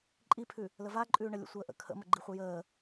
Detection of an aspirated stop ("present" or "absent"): present